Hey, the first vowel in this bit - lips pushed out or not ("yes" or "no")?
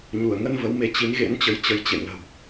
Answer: yes